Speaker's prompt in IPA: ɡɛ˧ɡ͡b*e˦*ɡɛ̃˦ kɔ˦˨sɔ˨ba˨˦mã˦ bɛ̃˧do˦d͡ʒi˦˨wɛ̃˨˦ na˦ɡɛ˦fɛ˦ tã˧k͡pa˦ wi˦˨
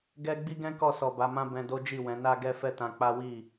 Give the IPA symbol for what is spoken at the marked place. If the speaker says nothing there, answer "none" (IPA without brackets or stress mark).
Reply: i˦